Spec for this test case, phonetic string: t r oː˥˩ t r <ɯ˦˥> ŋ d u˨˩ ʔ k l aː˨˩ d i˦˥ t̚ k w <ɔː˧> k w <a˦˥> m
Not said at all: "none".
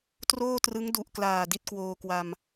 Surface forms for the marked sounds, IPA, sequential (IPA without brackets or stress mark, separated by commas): ɯ˦˥, oː˧, a˧